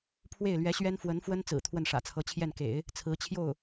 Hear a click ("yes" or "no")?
no